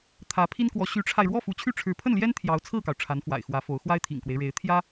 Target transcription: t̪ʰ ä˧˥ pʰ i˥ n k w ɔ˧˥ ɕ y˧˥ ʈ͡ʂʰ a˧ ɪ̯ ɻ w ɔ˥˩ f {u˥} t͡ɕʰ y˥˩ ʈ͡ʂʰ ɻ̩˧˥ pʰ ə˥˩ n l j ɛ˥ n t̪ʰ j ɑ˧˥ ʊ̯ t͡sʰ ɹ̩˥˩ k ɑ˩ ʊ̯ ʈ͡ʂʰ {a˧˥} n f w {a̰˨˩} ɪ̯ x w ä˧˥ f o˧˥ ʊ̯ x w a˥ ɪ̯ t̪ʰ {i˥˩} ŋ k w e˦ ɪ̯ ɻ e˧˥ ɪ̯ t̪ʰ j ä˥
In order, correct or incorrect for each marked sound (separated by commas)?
incorrect, correct, correct, incorrect